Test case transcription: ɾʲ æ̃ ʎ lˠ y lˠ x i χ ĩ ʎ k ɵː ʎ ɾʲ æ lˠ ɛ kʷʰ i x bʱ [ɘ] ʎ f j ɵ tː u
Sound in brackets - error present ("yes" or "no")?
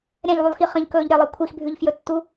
yes